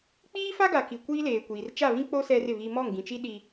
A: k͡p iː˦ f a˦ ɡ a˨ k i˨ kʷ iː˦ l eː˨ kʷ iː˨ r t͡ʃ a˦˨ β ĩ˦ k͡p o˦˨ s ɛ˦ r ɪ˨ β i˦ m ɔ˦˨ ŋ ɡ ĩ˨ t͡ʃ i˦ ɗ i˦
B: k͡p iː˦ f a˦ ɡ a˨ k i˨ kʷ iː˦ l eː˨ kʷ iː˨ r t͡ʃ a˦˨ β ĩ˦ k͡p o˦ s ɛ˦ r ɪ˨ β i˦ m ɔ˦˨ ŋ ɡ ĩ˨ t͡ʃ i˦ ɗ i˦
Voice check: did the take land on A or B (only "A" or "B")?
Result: B